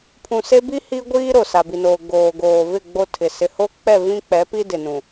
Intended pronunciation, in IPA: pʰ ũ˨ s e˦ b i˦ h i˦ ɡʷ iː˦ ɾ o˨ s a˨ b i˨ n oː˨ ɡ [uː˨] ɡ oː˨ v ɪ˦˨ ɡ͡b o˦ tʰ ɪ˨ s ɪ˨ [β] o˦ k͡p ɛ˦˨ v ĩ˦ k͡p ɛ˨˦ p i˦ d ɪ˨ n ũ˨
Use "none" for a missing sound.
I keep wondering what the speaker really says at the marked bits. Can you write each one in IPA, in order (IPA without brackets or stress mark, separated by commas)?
oː˨, h